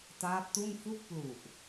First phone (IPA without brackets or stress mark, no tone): t